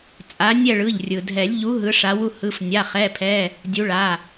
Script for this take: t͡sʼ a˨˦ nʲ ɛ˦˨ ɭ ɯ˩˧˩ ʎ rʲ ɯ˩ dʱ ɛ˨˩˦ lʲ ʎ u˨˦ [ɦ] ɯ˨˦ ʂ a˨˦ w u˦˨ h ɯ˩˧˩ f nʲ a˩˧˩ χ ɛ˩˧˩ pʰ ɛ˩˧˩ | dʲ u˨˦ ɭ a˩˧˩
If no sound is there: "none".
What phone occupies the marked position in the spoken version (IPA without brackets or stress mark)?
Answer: ɦ